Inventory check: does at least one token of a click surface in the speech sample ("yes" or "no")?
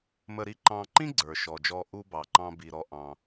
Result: yes